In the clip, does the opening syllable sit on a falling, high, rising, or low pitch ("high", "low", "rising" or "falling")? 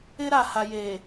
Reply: high